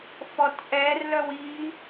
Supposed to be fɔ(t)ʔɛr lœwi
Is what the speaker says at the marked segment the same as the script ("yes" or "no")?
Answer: yes